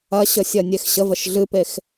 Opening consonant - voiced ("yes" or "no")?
no